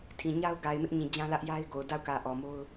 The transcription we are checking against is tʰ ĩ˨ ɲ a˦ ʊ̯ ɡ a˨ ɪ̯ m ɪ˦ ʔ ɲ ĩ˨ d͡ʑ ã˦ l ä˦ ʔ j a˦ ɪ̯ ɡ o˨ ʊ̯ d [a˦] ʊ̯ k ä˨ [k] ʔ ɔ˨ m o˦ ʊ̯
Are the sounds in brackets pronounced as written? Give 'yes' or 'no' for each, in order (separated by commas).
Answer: no, no